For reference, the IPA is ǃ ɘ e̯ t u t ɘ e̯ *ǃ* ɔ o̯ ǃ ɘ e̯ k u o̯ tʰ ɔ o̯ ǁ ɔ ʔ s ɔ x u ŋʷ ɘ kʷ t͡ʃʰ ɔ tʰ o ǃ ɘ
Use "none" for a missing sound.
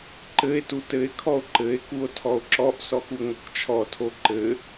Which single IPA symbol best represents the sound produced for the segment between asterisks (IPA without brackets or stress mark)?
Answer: kʰ